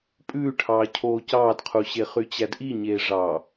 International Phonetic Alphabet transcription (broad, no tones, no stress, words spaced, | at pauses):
pʼʉːʈʰɑːcʰoː cɑːdqʰuɕe χyt͡ɕædʔiɲeː ʐɑ